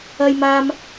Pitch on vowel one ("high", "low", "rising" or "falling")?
low